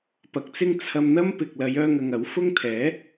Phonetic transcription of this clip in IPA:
p ɐ˨ k̚ t͡s ɪ˥ ŋ t͡sʰ ɐ˧ m n̪ ɐ˥ m p ɪ˨ k̚ l ɐ˨˧ j œː˥ ŋ ɐ˧ ŋ ɐ˨˥ w f ʊ˥ ŋ t̪ʰ ɛː˨˥

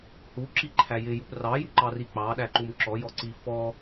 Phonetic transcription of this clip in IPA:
h u ǁ i ǃʰ æ j ɪ j u p r ɑ j u ǃ ɑ r i k͡p ɑ ɗ æ ǃ u m ǁ ɔ j ɔ ǀ i f ɔ

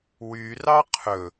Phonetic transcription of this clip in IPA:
w y r ɑ qʰ ɵ

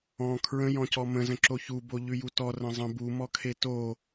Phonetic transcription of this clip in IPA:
ɔ̃ kʰ ɹ ə̃ j ɔ̃ c ɔ m ə̃ z ə̃ ǁ o ç u b o ʎ ʉ j u t ɔ r ə̃ zˤ ə̃ b u m ɔ kʰ e t o

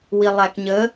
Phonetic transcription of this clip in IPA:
w i lˠ æ k ɲ ə

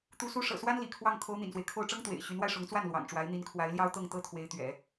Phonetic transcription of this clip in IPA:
t̪ u˧˥ s u˧˥ ʂ ɤ̰˨˩ s w a˥ n l ḭ˨˩ kʰ w ɑ˥˩ ŋ kʰ o˧˥ ʊ̯ n̪ ḭ˨˩ n s w e˦ ɪ̯ kʰ o˥˩ ʊ̯ ʈ͡ʂ ɤ˥ ŋ t̪ w ḛ˨˩ ɪ̯ ɕ y˧˥ n w a˧ ɪ̯ ʂ ʊ˧˥ ŋ t͡s w a˥˩ n l w ɑ̰˨˩ ŋ ʈ͡ʂ w a˧˥ ɪ̯ n̪ i˧˥ n kʰ w a˧˥ ɪ̯ l j ɑ˥ ʊ̯ t̪ ɤ˥˩ ŋ t̪ ɤ˥ t̪ʰ w e˧˥ ɪ̯ t̪ ɥ ɛ̰˨˩˦

